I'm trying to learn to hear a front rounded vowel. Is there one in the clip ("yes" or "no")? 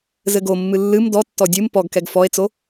no